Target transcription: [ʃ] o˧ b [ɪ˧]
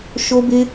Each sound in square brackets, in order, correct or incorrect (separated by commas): correct, correct